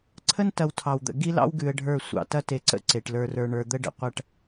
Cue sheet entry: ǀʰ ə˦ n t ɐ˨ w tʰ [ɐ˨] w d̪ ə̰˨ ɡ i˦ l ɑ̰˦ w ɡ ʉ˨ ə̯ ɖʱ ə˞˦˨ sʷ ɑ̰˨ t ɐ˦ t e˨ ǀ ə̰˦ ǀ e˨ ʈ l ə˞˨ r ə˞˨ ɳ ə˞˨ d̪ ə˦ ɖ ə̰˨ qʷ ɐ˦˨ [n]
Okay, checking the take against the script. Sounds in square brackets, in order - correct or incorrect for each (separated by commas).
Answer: incorrect, incorrect